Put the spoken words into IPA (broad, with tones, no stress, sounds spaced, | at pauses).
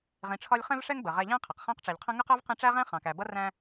ʁ ĩ˨ ʈ͡ʂʰ ɒ˦ lʲ χ ɛ̃˦ v ʂ ɛ˦ ŋ b ə˩ ʁ ɛ˨ ʎ ɛ̃˦ qʰ ʌ˩ q χ æ̃˥ q ʈ͡ʂ ɛ˨ ʎ qʰ ə̃˥ ŋ ə˥ q ɜ˥ v q ĩ˦ ʈ͡ʂ æ˥ ʁ æ̃˥ χ ɑ̃˨ k æ˨ b ʌ˥ r æ̃˦